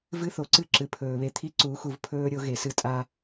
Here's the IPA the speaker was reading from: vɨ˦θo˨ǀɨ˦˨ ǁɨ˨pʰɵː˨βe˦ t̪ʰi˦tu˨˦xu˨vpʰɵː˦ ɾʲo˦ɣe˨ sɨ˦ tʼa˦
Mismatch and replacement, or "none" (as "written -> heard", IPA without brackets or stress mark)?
t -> ǀ